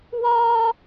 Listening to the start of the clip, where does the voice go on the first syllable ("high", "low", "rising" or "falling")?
high